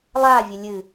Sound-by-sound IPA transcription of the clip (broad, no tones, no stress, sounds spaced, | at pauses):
lˠ a vʲ ɘ lʲ ɨ